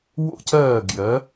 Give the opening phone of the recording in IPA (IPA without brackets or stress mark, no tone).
w